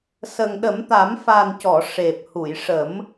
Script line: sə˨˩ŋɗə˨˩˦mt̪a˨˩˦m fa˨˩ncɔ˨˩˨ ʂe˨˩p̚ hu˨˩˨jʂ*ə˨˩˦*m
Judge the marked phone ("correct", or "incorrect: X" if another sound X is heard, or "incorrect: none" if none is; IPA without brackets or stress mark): correct